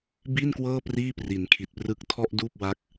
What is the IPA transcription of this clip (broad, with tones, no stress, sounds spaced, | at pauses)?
b i˥˩ n k w ɤː˥˩ p r iː˥˩ p r i˩˦ n kʰ i˨˩ t̚ p r ɯ˦˥ k̚ tʰ ɔ˥˩ ʔ d uː˥˩ p̚ w a˦˥ k̚